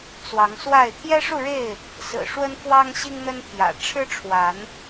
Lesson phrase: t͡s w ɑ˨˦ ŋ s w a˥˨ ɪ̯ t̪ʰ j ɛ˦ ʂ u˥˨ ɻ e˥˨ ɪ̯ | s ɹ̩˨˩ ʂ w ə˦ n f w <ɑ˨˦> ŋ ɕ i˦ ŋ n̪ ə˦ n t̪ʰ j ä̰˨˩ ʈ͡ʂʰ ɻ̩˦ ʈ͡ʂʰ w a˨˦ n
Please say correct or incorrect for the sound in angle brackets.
incorrect